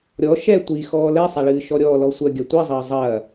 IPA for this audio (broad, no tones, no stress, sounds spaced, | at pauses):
ɾʲ ɔ ʃ ɛ tʷ i x ɔː l ɛ sˤ a ɭ ɨː ʃ ɔ ɾʲ ɔː l ɔ sʷ ɐ ɡʲ ɐ tʷ i zˤ ɐː zˤ ɐː